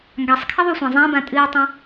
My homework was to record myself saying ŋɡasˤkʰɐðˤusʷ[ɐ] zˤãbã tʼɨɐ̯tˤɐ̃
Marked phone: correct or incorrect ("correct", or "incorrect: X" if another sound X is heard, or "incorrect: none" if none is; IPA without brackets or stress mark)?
incorrect: ɐ̃